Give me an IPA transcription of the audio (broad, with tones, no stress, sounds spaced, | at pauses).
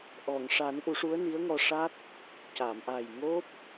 ʔ ɔ˨˩˨ ŋ ʂ a˨˩˦ n ʔ u˨˩˦ ʂ u˧˥ ə̯ n i˧˥ ə̯ ŋ ɔ˧ ʂ a˦˥ t̚ | c a˨˩˨ m ʔ a˨˩ j ŋ o˦˥ p̚